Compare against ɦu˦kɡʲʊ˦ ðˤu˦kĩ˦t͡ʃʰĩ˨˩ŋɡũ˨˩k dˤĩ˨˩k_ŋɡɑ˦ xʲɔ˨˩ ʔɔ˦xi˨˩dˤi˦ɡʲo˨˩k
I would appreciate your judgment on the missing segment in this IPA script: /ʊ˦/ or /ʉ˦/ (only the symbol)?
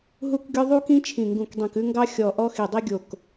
ʉ˦